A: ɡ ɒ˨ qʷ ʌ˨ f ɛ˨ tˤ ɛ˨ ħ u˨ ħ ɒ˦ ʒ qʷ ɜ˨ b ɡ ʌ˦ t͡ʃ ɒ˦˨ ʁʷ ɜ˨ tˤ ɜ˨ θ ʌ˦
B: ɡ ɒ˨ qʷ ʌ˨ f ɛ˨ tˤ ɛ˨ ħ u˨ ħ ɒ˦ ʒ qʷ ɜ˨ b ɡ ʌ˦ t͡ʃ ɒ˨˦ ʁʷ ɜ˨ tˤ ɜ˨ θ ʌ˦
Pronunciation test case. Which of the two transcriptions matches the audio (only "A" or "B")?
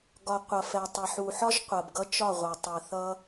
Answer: A